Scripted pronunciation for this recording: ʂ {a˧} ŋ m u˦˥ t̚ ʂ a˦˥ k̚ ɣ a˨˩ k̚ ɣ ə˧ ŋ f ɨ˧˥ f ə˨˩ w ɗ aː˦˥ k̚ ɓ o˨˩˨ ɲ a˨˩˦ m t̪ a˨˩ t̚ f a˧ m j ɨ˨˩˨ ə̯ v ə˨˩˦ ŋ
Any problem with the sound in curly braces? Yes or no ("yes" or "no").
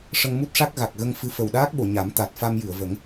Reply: yes